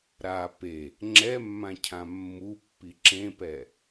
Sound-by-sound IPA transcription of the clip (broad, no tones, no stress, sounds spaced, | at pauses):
ɾ a p e | ŋ͡ǁ ɛ mː ã cʰ ã mː u pː i ǁ ẽ p ɛ